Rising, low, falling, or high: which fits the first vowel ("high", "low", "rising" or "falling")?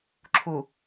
low